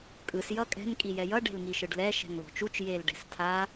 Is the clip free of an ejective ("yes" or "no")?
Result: no